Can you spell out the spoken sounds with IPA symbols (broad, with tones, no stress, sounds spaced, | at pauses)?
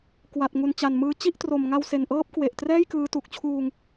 k w a˨˩ t̚ ŋ u˨˩ n t͡ɕ a˨˩ n m ɯː˧ t͡ɕ i˥˩ ʔ t r o˨˩ m ŋ a˧ w s e˨˩ n ʔ ɤː˦˥ p̚ k w e˨˩ ʔ t r ɛː˥˩ j k ɯː˦˥ t u˨˩ k̚ t͡ɕʰ uː˧ ŋ